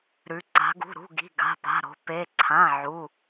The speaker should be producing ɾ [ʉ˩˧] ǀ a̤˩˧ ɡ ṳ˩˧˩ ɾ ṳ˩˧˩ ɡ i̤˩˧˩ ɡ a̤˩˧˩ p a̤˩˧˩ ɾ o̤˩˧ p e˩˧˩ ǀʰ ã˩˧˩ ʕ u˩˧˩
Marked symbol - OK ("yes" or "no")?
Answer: yes